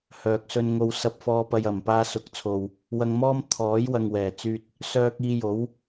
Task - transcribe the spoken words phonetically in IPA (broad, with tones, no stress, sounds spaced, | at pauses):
h œː˨ k̚ s ɵ˧ n ŋ o˧ w s ɐ˧ p̚ f ɔː˧ p ɐ˧ j ɐ˨˩ m p aː˧ s ʊ˨˥ k̚ t͡sʰ o˨ w | w ɐ˧ ŋ m ɔː˥ m t̪ʰ ɔː˨˥ j w ɐ˨ ŋ w ɛː˨˩ t͡s yː˧ t̚ | s œː˧ k̚ iː˧ j o˨˥ w